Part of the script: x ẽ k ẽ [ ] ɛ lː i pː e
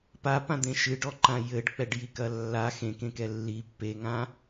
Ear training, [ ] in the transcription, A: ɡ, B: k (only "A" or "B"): B